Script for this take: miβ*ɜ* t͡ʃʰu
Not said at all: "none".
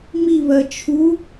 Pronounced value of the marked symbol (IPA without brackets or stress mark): ɜ